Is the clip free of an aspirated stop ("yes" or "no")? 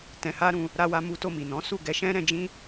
yes